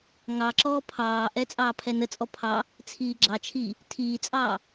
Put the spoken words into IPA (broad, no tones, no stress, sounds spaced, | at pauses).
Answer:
ŋ ɑ ǁ ɔː pʰ ɑː ʔ ɛ t͡sʼ ɑː pʰ ɛ n ə t͡sʼ ɔ pʰ ɑ | t͡sʰ iː ɡ͡ǁ ɑ t͡ʃʰ iː | tʰ iː t͡sʼ ɑː